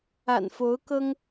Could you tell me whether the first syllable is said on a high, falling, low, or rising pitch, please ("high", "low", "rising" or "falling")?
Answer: low